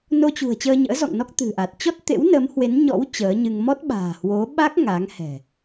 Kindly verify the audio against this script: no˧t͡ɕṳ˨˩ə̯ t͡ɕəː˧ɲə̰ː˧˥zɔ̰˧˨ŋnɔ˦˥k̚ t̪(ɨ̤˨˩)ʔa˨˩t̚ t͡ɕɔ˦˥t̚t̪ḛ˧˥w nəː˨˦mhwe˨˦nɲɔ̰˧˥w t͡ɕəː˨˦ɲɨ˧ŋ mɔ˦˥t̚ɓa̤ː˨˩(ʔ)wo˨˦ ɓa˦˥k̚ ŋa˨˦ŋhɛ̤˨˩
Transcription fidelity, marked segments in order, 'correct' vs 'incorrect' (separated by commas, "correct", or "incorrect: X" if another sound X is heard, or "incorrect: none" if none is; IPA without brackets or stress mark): correct, incorrect: h